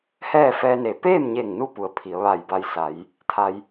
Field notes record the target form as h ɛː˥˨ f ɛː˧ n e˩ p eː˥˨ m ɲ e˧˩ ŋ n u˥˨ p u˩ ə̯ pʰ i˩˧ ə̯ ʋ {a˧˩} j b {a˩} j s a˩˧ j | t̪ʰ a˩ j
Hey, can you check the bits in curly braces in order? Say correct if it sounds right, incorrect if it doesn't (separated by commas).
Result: correct, incorrect